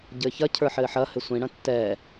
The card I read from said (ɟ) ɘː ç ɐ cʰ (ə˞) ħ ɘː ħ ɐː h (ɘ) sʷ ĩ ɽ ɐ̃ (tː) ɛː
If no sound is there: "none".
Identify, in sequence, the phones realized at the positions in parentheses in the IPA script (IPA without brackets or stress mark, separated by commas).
ɟ, ə˞, ɘ, tː